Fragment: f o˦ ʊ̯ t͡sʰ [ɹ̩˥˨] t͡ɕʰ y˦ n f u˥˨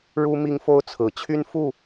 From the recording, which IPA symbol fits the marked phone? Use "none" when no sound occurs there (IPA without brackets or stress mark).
ɹ̩˨˩